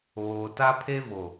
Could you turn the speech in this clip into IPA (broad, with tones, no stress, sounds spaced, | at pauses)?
oː˨ t a˦ pʰ e˦ v o˨